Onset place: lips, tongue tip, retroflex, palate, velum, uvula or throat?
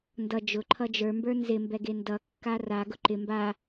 tongue tip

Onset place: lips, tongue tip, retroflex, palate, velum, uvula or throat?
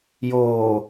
palate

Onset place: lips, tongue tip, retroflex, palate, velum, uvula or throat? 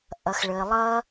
throat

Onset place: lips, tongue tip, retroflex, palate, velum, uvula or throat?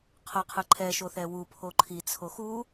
uvula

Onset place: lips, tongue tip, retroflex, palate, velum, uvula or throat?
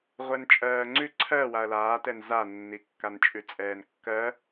uvula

